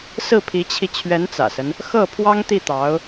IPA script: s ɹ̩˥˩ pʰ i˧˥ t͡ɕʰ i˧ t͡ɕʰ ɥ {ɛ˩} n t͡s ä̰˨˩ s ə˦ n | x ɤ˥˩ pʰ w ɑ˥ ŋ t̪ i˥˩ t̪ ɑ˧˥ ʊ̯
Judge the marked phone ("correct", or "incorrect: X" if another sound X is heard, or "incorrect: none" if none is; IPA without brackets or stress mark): incorrect: ɛ˧˥